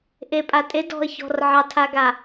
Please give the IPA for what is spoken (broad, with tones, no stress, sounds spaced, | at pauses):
ʔ e˨ pʼ a˨ tʼ e˨˦ d ɔ̤˨ ə̯ ç ɔ̤˨ r ʕ ɑ˨ tʰ a˨ ɡ a˨